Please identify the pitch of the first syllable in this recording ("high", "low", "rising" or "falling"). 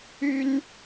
high